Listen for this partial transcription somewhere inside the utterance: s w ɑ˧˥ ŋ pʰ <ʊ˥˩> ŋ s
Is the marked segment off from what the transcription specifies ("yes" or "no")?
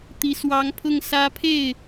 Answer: no